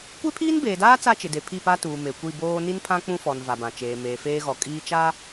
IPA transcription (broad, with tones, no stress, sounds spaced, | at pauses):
kʷ e˦ pʰ iː˦ n b eː˨ d aː˦ t͡s a˦ t͡ʃ ɪ˨ d e˨ pʰ i˦˨ p a˦ t uː˨ m e˨ kʷ i˦˨ b oː˦ n i˦ n pʰ ã˦ k͡p ũ˦ f ɔ˨ n v a˨ b ã˨ t͡ʃ eː˨ m eː˨ f eː˦ ɣ ɔ˨ kʼ iː˦ t͡ʃ a˦